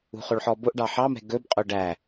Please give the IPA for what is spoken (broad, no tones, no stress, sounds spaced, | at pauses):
ṳ χ o ɭ ħ ɔ b o ʔ ɖ ɑ ħ ɑ m ɛ̤ ɡ ɵ b qʼ o ɖ æ